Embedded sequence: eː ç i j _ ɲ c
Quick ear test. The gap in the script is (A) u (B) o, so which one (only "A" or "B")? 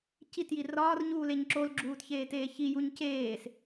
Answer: A